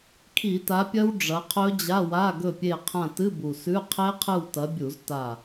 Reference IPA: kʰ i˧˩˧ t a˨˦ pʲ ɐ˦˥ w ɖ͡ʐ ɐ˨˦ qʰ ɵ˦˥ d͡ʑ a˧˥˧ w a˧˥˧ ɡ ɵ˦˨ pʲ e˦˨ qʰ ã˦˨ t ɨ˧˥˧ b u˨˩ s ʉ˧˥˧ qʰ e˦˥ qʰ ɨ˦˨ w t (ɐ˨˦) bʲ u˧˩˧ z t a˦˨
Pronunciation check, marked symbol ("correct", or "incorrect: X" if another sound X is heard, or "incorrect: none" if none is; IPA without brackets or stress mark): correct